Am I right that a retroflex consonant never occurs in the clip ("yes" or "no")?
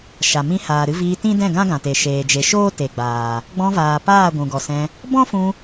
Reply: yes